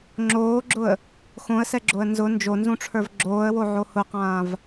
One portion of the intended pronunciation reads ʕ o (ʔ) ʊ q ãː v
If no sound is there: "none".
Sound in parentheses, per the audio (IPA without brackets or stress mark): h